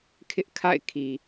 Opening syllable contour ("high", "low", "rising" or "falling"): high